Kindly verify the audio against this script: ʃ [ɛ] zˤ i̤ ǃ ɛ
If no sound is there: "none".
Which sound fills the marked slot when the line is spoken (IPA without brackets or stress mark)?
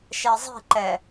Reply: ɛ